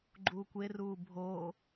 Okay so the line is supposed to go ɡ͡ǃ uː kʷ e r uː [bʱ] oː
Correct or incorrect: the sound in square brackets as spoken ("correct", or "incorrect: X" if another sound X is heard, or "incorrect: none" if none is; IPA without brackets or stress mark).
correct